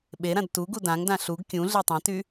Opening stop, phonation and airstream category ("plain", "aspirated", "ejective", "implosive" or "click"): implosive